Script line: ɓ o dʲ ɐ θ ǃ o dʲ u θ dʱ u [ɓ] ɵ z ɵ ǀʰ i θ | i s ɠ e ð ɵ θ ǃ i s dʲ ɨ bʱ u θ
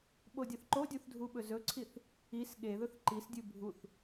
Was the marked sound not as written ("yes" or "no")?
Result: no